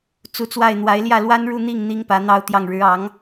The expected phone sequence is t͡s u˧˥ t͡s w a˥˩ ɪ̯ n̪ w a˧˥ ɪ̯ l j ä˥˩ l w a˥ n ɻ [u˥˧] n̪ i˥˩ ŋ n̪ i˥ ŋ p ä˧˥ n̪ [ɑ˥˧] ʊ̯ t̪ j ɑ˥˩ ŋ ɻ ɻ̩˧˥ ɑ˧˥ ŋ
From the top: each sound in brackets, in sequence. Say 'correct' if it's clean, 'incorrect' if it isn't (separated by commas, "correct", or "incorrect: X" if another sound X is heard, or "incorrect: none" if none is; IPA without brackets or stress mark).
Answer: correct, correct